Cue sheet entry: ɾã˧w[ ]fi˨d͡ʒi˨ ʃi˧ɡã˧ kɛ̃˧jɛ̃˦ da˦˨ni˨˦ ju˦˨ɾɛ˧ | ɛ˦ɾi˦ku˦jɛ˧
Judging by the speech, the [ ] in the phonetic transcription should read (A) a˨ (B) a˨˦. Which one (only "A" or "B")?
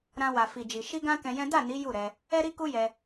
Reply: A